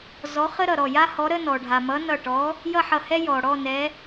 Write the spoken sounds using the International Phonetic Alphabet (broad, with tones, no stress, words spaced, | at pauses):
zɔ˨˥χə˥ɾʌ˧˩ɾɔ˧˩ ja˥hɔ˨˥ ɾə˥nɔ˩ ɖʱa˩mʌ˨˥ nʌ˧˩ʈɔ˨˥ | jʌ˥˧ħʌ˧˩hɛ˥ jɔ˩ɽɔ˥˧ nɛ˨˥